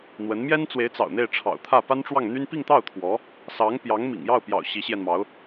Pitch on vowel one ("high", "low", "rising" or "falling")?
rising